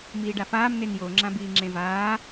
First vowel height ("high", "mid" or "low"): high